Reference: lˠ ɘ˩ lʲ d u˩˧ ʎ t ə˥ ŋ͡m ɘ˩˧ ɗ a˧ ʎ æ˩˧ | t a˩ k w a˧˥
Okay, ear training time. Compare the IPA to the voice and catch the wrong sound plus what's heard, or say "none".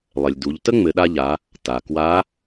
æ˩˧ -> a˩˧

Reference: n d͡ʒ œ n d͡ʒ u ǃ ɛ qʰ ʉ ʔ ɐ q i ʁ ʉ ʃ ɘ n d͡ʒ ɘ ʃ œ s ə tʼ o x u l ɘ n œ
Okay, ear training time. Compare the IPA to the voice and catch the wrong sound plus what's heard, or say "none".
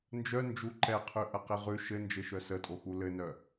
none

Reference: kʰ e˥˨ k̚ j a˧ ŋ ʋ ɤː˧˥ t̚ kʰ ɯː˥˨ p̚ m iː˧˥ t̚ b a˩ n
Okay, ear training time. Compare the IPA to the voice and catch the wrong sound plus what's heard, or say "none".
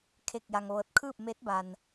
iː˧˥ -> eː˧˥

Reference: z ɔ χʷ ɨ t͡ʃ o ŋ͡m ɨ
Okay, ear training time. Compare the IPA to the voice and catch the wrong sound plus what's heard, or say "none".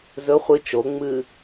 ɔ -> ɵ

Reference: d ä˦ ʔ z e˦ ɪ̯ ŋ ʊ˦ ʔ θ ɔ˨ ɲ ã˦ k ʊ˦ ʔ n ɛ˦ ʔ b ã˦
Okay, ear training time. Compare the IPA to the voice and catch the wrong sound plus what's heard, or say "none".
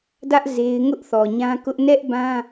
none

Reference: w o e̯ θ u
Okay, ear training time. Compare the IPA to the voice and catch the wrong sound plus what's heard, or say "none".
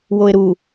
θ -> ɾ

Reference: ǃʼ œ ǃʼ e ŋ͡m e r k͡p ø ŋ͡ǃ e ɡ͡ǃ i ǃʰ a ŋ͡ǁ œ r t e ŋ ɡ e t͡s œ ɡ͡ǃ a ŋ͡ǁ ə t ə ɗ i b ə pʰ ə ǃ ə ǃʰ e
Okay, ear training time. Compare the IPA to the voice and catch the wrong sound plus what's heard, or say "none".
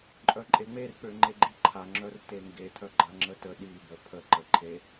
t͡s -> tʰ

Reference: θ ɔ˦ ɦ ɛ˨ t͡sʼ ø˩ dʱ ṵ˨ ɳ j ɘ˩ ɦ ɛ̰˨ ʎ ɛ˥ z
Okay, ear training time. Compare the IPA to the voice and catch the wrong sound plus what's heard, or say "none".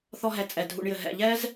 ø˩ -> ɛ˩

